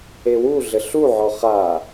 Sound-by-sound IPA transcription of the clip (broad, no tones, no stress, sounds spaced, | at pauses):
e w u ɮ ɘ ɬ u ʕ ɔ χ a